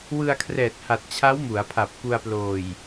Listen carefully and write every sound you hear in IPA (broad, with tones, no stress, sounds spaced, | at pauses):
w ɯ˧ a̯ kʰ r ɛː˨˩ t̚ h a˨˩ t̚ t͡ɕʰ a˦˥ w m u˩˦ a̯ pʰ a˨˩ p̚ k u˧ a̯ p l oː˨˩ j